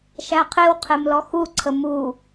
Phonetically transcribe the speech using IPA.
ʃ æ qʰ e w qʰ e m l ɔ x u ǀʰ ə m u

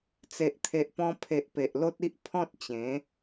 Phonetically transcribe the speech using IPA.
t͡s e˨ ʔ t̪ʰ e˨ ʔ p ɔ̃˧ pʰ e˨ ʔ p e˨ ʔ l o˦ t̚ i˦ ʔ pʰ ɔ̃˦ t̚ t͡ɕ ẽ˨˦

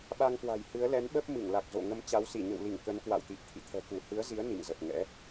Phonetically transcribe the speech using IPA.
ɓ a˧ ŋ k w a̤˨˩ j h ɨ˨˦ ə̯ l ɛ˨˦ n ɓ ə˦˥ p̚ m ɨ˧˩ ŋ l a˨˩ k̚ z o̰˧˨ ŋ ə˧ m t͡ɕ a˨˦ w s i˧˩ ɲ ə̰˧˨ w l i˧˩ ŋ k ə˨˦ n k w a̰˧˨ w t̪ i˨˩ p̚ t̪ʰ ḭ˧˨ t̪ʰ ɛ̤˨˩ k u˧˩ h ɨ˨˦ ə̯ z i˨˦ ə̯ n ḭ˧˨ ŋ z ə˨˩ p̚ ŋ ɛ̰˧˥

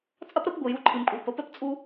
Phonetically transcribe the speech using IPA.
t͡sʼ ɐ˦ p ɾ ə˨˦ p ɡʷ ɨ˨ j u˧ ǃʰ ɨ˨ m kʷʼ ɨ˨ p ə˨˦ p ɛ˦ p t͡sʼ u˦

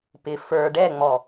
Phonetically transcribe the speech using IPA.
p ɪ f ə˞ ɖ ɛ ŋ͡m ɔ

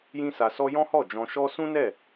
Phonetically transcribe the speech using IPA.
j ĩ˦ s a˧ s ɔ˧ j ɔ̃˦ h ɔ˦˨ d͡ʒ ɔ̃˧ ʃ ɔ˦ s ũ˦ n ɛ˦˨

